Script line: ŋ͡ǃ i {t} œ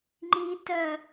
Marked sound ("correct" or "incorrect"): correct